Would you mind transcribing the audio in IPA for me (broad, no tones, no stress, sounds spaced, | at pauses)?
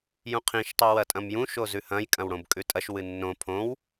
j ũ qʰ ĩ ʃ tˤ i w ɐ tʼ ɐ̃ m j ũ ʃ o z ʉ h ɐ̃ j kʼ ɐ̃ w ɽ õ b kʼ ʉ tʼ ɐ ʃ w ɨ nː õ pʰ õ w